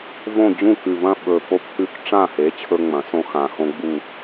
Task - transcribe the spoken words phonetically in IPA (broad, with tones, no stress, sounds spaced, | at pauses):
v õ˦˨ d͡ʑ ũ˦˨ k ʉ˨˩ v ɐ̃˦˨ ɓ ɵ˨˩ p o˦ p h ʉ˦ k ʈ͡ʂ ã˦˨ h e˩˥ t͡ɕʰ ɵ˦ ŋ͡m ɐ̃˨˩˦ s õ˦ x ã˨˩ x õ˦ ɡ͡b u˦˨